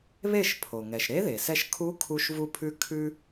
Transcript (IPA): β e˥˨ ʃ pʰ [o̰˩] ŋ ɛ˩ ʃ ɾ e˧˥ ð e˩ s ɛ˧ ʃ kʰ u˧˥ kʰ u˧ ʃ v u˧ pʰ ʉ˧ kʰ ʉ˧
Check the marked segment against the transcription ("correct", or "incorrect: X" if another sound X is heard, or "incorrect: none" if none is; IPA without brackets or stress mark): incorrect: o˩